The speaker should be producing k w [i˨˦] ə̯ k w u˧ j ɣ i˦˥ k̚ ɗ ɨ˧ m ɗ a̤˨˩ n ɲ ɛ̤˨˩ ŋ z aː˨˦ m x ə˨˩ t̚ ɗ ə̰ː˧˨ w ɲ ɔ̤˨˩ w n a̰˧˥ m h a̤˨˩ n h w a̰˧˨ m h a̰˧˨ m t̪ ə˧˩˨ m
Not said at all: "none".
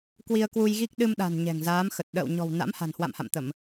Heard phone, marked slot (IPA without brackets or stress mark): i˧